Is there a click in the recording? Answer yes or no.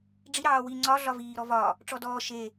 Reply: yes